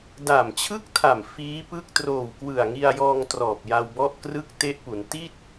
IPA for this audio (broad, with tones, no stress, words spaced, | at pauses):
da˨˩mt͡ɕʰɯ˥˩k̚tʰa˨˩m fiː˦˥pɯ˥˩k̚ troː˨˩wkwɯ˨˩a̯ŋi˧a̯jɔː˧ŋ trɔː˨˩p̚ ja˧wbɔ˥˩ʔ krɯ˥˩k̚ te˦˥ʔpu˩˦n ti˥˩t̚